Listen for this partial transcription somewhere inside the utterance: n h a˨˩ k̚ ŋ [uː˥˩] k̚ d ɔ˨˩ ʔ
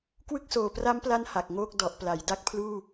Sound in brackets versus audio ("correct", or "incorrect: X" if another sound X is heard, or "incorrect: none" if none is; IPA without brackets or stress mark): incorrect: oː˥˩